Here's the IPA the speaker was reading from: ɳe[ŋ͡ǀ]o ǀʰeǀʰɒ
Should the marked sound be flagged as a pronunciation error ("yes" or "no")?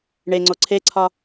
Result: no